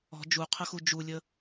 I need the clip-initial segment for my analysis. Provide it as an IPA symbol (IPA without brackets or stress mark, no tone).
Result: ɔ̤